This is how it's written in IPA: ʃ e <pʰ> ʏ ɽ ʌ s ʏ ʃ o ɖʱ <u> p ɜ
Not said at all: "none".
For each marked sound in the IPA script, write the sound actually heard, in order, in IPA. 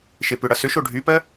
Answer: p, y

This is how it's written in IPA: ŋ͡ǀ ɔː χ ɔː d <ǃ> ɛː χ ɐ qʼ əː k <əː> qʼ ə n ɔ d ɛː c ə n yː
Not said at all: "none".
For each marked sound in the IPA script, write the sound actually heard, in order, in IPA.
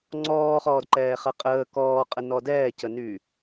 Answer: ǃ, ɔː

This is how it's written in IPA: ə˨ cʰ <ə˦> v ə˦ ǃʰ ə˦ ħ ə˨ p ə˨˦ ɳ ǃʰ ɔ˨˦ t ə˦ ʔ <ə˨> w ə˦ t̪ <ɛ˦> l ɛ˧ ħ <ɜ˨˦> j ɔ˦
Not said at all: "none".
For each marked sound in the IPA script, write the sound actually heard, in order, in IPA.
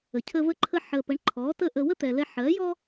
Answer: ə˦, ə˧, ɛ˨, ɜ˨˦

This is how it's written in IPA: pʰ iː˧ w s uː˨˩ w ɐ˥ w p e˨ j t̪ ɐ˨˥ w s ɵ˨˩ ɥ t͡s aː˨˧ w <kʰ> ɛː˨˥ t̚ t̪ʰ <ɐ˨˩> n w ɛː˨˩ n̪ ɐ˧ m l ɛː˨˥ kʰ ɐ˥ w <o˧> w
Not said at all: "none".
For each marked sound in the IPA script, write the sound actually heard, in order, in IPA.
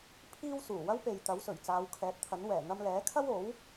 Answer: kʰ, ɐ˨˥, o˨˥

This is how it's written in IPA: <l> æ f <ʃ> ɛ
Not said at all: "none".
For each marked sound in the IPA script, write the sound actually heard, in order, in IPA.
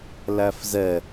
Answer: l, z

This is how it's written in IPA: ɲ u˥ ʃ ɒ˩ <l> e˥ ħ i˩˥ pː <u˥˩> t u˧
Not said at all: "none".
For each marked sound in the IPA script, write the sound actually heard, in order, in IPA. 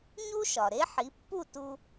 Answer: ɾ, u˥˩

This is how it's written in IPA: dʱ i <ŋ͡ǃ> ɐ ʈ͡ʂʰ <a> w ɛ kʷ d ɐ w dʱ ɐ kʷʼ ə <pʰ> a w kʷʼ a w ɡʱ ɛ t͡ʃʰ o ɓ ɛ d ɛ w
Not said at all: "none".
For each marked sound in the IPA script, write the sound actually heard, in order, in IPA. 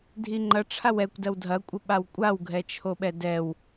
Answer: ŋ͡ǃ, a, ɓ

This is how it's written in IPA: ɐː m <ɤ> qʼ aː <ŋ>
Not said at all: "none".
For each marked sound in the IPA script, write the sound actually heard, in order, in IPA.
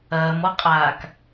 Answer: ɔ, k

